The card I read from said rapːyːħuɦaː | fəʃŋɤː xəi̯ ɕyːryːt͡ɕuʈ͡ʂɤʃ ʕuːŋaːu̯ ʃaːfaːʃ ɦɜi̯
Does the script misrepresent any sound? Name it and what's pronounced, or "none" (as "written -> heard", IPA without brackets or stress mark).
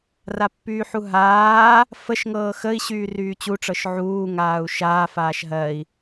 none